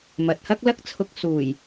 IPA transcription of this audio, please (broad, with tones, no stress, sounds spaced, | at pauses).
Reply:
m ɐ˨ t̚ h ɐ˥ k̚ l ɐ˥ k̚ t͡sʰ ʊ˧ k̚ s uː˨˩ j